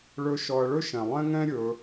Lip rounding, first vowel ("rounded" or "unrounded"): rounded